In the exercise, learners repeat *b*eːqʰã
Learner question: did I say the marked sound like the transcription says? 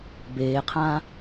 yes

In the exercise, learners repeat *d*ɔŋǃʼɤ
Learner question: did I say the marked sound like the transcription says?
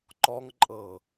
no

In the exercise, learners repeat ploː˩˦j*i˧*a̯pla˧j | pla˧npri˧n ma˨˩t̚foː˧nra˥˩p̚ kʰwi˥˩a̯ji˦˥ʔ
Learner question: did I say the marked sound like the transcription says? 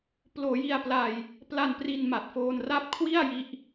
yes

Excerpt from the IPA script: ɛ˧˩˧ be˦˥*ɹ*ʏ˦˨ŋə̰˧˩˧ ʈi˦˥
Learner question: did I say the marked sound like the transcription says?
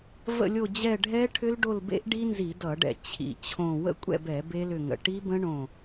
no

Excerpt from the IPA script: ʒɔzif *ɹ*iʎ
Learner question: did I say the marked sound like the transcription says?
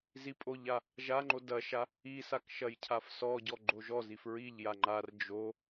yes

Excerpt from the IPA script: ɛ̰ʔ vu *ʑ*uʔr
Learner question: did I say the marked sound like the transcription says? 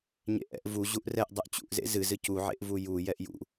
yes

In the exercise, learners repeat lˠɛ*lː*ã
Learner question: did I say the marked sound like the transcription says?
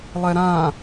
no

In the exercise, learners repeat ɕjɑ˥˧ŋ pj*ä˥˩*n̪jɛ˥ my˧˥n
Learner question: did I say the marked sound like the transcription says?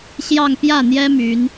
yes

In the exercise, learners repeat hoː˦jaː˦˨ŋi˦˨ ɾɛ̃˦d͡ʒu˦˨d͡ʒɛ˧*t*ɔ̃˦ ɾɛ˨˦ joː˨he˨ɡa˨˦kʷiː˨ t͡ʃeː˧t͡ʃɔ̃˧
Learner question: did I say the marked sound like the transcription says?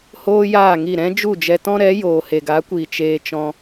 yes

